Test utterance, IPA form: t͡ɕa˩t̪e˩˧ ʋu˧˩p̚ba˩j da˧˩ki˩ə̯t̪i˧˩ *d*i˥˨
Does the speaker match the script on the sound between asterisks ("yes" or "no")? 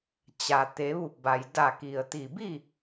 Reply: no